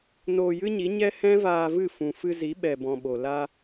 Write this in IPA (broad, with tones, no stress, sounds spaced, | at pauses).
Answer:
n oː˧ j ɨ˦ ɲ i˨˦ ɲ ɛ˦ h ɛ̃˦ v aː˧ v ɨ˦˨ f ũ˨ f ɨ˧ z i˨˦ ɓ ɛ˨ b ɔ̃˨ ɓ o˨ l a˧